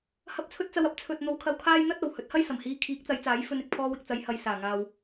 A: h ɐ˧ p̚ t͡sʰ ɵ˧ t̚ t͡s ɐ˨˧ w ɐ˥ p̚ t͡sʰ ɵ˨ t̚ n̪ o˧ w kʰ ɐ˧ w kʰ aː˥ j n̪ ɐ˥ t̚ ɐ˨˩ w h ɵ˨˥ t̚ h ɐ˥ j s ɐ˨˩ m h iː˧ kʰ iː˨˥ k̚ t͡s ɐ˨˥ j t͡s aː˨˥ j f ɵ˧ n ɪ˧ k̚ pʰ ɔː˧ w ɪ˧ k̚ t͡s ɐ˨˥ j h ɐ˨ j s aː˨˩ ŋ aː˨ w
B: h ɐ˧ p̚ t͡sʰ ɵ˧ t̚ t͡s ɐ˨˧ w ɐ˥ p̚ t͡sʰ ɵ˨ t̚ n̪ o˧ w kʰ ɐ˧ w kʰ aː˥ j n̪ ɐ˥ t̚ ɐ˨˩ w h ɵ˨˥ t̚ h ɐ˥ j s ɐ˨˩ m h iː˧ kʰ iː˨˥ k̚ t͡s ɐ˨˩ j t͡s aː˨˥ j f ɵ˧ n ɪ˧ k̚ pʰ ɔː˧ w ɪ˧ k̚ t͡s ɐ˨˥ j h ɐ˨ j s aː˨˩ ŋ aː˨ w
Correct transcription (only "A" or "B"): A